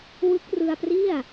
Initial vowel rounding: unrounded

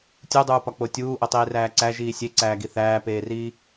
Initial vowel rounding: rounded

